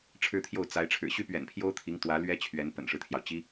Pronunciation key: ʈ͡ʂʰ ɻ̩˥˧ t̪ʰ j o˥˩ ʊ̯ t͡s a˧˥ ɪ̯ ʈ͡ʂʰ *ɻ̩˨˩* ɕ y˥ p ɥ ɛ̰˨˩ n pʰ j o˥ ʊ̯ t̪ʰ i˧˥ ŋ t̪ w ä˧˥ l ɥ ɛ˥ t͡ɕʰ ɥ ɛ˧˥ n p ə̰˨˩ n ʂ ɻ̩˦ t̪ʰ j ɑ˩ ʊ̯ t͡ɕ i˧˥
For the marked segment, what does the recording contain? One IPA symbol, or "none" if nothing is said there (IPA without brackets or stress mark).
ɻ̩˨˩